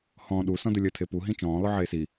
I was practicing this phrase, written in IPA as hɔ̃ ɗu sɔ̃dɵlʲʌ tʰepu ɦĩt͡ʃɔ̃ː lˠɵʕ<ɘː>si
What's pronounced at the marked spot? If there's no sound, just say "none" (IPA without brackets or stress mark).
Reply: eː